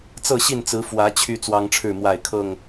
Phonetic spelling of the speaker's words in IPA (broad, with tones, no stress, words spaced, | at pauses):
t͡sɤ˥˨ɕi˥˨nt͡sɹ̩˨˦ fwä˨˦ t͡ɕʰy˦ t͡swɑ˦ŋʈ͡ʂʰɻ̩˥˨ mwa˥˨ɪ̯kʰɤ˥˨ŋ